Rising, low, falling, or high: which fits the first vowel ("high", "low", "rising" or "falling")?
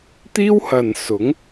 high